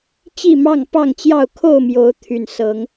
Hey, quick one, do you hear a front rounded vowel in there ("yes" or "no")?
yes